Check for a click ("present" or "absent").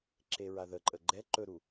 present